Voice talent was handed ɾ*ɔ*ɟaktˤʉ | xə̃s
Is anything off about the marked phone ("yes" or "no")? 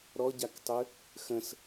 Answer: no